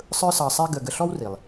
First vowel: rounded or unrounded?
unrounded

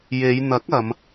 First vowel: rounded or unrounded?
unrounded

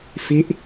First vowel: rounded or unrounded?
unrounded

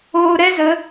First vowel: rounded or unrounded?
rounded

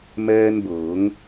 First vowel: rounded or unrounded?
unrounded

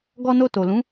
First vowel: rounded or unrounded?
rounded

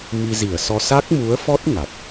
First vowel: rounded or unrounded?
unrounded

